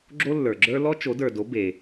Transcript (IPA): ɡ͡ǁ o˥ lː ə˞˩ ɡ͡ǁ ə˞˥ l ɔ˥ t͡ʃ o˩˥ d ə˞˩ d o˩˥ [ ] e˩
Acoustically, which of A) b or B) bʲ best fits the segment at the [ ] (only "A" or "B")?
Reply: A